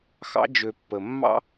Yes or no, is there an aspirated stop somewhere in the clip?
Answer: no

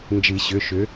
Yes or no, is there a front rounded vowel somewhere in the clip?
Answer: yes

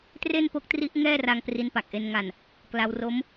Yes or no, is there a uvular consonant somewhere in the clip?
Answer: no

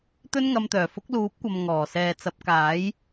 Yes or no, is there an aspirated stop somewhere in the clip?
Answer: no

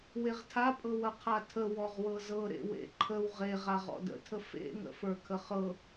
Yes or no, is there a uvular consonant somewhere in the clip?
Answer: yes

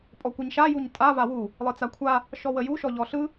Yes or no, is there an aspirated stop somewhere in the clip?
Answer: yes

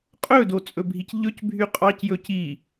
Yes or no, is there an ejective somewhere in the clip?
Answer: yes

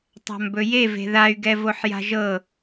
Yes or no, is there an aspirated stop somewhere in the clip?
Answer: no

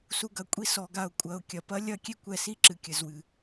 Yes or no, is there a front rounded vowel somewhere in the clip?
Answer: no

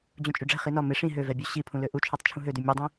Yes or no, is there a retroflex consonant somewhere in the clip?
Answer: yes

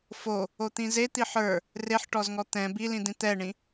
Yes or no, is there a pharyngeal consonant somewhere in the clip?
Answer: yes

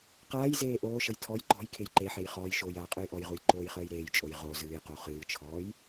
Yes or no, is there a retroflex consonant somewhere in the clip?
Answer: no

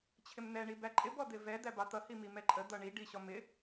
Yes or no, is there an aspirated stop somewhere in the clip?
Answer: yes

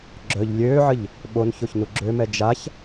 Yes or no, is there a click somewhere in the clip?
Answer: yes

